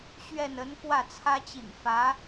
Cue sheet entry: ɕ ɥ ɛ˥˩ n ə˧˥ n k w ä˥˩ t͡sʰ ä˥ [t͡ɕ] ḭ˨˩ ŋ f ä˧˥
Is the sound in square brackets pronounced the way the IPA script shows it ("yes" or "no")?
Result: yes